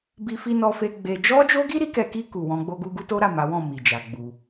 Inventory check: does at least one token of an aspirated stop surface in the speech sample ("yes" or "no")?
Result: no